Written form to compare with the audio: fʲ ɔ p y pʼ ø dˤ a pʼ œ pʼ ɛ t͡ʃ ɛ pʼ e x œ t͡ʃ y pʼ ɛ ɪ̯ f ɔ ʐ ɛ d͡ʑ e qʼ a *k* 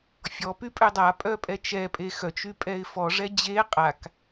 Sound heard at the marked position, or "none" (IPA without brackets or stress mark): k